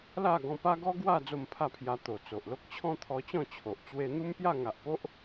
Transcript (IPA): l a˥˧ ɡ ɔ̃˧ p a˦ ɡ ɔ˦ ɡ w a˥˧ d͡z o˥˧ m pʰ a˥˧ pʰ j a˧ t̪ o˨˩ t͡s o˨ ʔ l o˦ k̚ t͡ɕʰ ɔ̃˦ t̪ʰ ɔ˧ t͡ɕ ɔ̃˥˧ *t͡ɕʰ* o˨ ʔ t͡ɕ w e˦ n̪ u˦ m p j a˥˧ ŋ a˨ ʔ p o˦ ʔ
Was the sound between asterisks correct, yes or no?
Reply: yes